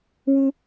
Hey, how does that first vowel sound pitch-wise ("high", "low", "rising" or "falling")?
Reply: high